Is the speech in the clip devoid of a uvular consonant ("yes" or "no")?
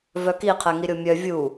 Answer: no